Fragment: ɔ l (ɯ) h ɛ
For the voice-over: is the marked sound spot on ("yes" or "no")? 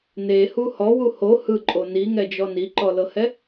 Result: no